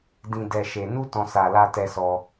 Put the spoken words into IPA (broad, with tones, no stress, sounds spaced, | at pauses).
d ĩ˨ d ɛ˨ ʃ e˨ n u˧ t ɔ̃˨ s a˨ l a˧ t ɛ˧ s ɔ˧